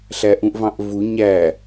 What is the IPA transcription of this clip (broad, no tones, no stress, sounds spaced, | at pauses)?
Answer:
ɬ æ ʔ ũ ʔ v ɑ̃ ʔ v u ɲ æ